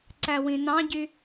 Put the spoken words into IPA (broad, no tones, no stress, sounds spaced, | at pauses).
ǀ æ w ĩ n ɑ̃ ɟ y